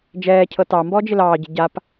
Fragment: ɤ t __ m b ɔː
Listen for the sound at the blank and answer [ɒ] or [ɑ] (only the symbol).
ɑ